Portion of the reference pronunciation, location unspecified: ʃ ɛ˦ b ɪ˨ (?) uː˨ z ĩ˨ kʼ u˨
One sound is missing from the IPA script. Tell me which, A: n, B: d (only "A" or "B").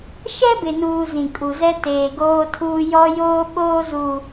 A